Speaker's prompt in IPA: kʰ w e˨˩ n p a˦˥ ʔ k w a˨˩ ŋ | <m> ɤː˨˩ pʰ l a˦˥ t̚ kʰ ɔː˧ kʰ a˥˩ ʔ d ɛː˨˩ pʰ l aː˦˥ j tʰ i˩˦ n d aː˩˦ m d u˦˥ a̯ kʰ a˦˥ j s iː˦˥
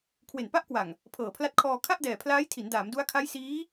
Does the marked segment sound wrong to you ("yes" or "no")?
yes